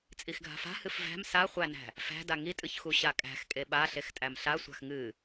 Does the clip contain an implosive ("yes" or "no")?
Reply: yes